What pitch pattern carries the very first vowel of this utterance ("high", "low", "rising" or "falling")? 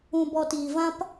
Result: low